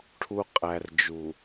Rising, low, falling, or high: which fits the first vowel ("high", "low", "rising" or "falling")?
low